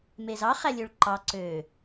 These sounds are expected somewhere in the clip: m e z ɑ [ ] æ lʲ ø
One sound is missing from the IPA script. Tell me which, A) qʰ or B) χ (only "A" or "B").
B